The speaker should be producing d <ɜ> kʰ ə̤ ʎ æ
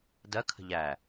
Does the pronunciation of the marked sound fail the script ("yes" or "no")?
no